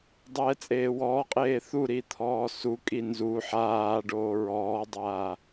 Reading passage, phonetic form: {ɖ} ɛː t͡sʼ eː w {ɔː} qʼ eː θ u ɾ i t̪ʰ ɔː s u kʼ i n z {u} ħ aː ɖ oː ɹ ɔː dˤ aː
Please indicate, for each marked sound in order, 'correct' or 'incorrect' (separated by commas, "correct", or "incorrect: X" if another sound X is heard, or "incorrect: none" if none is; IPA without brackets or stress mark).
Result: incorrect: dˤ, correct, correct